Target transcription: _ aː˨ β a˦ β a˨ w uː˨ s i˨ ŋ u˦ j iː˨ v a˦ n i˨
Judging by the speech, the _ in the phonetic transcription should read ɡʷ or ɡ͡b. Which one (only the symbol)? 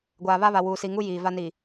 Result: ɡʷ